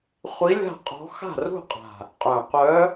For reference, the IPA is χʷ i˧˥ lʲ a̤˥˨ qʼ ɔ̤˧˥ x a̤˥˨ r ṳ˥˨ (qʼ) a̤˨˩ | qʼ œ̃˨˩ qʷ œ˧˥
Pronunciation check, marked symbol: correct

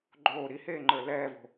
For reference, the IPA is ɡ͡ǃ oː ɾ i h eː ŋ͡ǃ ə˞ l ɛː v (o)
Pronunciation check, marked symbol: incorrect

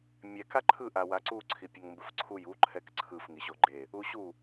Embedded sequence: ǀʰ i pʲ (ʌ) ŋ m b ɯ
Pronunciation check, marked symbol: correct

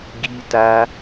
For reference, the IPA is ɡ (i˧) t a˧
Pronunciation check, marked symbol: correct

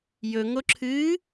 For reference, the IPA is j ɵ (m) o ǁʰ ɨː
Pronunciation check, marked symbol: incorrect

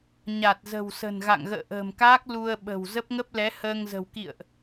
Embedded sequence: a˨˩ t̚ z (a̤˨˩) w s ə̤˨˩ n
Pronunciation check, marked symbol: incorrect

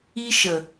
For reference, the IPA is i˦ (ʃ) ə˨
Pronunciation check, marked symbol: correct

